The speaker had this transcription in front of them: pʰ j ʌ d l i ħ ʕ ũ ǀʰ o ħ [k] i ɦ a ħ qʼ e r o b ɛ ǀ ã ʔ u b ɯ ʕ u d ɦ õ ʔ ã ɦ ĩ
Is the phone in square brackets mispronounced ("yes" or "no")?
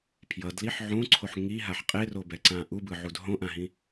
yes